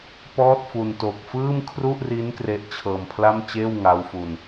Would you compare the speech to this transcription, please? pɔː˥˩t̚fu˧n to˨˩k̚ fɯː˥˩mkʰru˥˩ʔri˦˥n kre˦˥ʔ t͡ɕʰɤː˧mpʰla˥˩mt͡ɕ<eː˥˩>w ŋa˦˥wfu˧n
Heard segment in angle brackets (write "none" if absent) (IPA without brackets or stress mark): eː˥˩